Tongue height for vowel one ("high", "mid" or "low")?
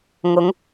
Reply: high